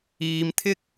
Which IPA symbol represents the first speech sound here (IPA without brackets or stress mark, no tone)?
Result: iː